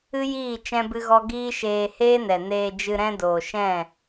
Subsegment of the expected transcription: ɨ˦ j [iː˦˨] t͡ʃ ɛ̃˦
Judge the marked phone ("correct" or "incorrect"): correct